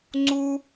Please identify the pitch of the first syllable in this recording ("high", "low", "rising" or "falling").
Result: high